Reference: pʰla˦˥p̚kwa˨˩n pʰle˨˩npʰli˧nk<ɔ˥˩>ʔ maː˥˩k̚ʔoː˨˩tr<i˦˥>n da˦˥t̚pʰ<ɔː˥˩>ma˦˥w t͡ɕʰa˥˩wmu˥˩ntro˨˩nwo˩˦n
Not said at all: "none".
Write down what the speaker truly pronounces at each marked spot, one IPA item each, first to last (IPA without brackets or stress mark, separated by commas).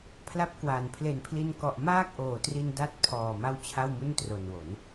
ɔ˨˩, i˧, ɔː˨˩